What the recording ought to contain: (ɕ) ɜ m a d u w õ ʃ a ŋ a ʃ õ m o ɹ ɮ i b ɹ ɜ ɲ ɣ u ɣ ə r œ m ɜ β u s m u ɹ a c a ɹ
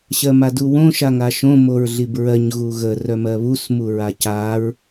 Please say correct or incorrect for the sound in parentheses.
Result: correct